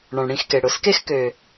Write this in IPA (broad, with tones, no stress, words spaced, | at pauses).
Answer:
ɳɔ̃˨ɳɽĩ˦˨xke˨ ɽʊ˨s ke˦xkø˨